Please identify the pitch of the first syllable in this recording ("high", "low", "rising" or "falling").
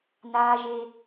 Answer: high